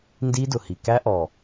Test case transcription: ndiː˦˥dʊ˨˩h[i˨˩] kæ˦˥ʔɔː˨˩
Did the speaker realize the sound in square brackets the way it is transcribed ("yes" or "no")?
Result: yes